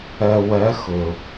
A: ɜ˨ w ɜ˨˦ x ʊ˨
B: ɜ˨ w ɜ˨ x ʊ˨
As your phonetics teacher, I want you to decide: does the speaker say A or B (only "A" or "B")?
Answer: A